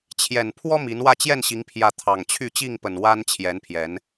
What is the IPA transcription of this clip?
t͡ɕʰ j ɛ˨˩ n pʰ w ɔ˦ m i˨˦ n w ä˥˨ t͡ɕ j ɛ˥˨ n ɕ i˨˦ ŋ pʰ j ä˨˦ t̪ʰ ɑ˨˩ ŋ t͡ɕʰ y˥˨ t͡ɕ i˥˨ ŋ p ə˨˩ n w a˦ n t͡ɕʰ j ɛ˨˦ n pʰ j ɛ˨˦ n

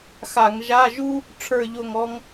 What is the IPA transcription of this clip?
x a˧˩˧ ŋ ʒ a˧˥˧ ʒ u˥ | ʈ͡ʂʰ ə˞˥˨ ʎ o˥˨ ŋ ɔ˥ ŋ

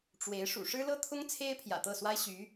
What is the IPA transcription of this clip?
ʈ͡ʂ w e˧˥ ɪ̯ ʂ ṵ˨˩ ʂ ɻ̩˥ l ɤ˥ t̪ʰ ʊ˥ ŋ t͡sʰ e˥ ɪ̯ pʰ j ä̰˨˩ t̪ ɤ˥˩ s w a˥ ɪ̯ ɕ y˧˥

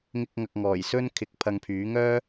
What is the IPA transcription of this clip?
ŋ ɪ˧ k̚ ŋ ɐ˨ k̚ ŋ ɔː˨˩ j s ɵ˥ n kʰ ɪ˨˥ k̚ pʰ ɐ˧ ŋ pʰ yː˨˥ ŋ œː˥

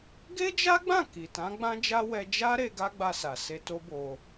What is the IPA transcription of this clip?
ɡ e˦ d͡ʒ a˦ ɡ͡b ã˦˨ k i˨ t ã˨˦ ɡ͡b ã˦ d͡ʒ a˦ w ɛ˧ d͡ʒ a˦ ɾ e˧ ɡ a˦ ɡ͡b a˧ s a˨ s e˧ t o˦ b o˧

